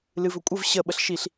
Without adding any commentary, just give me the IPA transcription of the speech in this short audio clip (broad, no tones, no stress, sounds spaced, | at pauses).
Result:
l ɨ v ɵ kʷʼ ə v ɕ ə ɓ ə ɬ ʃ i ɬ